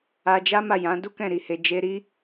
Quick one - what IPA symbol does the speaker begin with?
a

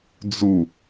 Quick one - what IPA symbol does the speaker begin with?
d͡z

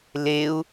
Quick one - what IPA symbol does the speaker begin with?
l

